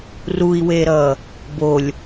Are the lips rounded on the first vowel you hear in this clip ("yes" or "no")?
yes